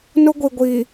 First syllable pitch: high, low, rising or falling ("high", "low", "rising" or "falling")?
high